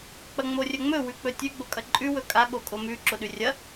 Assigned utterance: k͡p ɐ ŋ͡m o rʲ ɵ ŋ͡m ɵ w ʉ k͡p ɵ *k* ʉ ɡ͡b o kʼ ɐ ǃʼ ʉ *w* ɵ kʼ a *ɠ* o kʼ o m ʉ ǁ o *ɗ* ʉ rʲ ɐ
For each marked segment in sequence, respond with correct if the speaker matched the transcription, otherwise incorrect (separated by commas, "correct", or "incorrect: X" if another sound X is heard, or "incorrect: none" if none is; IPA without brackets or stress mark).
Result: incorrect: tʲ, correct, correct, correct